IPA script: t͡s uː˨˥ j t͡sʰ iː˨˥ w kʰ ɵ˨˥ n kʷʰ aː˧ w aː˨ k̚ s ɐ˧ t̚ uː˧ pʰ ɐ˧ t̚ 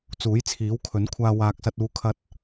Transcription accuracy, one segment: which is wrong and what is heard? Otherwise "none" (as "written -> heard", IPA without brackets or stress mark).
pʰ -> kʰ